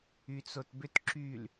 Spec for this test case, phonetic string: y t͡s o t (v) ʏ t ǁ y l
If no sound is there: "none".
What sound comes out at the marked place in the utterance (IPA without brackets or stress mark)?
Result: b